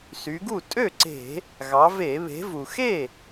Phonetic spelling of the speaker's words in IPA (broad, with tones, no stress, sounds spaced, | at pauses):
s y˩˧ ɡ u˥˩ tʼ ø˥˩ ǀ e̤˧˩˧ | ɣ ɑ˩˧ v e˧˩˧ β e̤˩˧ v u˩ x e˥˩